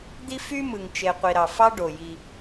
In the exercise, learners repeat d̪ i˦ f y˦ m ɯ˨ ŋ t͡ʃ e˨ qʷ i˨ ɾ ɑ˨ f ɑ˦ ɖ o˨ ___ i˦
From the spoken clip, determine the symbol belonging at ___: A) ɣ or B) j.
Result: B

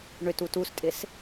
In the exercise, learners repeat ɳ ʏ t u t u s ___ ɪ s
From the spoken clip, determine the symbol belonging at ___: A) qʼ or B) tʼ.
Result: B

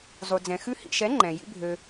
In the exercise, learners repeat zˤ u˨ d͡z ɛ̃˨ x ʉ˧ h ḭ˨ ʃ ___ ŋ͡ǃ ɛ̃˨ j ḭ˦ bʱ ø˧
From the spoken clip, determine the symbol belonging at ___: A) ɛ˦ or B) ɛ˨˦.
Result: B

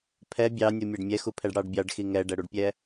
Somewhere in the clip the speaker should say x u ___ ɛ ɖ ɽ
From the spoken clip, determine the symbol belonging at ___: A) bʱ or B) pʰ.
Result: B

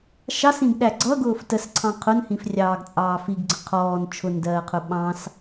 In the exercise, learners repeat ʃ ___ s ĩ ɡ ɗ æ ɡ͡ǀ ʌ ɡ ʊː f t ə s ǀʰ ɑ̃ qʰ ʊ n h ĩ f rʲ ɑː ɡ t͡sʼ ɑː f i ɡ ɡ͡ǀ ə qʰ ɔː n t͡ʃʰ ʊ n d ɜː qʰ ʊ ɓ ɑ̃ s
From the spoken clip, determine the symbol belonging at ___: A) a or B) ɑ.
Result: B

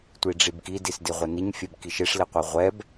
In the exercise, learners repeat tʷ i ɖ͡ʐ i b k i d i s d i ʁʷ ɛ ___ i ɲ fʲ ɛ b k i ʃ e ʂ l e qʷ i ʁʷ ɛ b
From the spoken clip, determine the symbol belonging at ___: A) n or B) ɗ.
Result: A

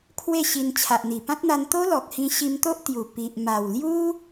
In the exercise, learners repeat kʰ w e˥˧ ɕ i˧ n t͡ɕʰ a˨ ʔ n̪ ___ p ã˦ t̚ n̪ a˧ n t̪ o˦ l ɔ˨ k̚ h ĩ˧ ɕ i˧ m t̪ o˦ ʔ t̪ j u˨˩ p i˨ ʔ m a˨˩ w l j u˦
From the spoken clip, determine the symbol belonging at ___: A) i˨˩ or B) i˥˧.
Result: A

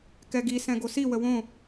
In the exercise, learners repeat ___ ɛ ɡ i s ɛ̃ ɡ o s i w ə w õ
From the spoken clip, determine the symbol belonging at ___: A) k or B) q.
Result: A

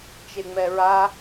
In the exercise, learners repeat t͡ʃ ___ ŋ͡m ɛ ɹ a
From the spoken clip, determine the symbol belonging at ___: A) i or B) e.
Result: B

